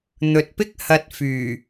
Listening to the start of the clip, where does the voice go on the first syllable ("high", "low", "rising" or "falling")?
low